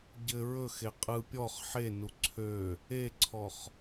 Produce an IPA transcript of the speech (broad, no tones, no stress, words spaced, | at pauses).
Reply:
ɟɘ ɹɵxe qʼɯ pʲɔχ ħenu ǀʰø | eǀʰɔχ